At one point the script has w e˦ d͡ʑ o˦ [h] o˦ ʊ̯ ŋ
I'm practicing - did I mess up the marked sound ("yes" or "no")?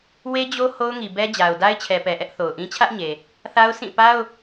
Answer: no